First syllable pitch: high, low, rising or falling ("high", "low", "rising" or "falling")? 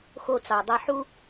high